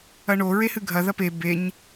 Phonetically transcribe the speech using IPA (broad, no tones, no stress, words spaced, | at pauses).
ɐɳo ɹehɨɡʱɐ ðɐpe beɲ